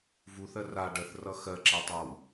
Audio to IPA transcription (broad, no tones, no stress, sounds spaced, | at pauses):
v u θ ɜ r a ɖ ɜ θ r ʌ x ɜ ǁ ɛ tˤ a w